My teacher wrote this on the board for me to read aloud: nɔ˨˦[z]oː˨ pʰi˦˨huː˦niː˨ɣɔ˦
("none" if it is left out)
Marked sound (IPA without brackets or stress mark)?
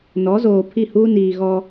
z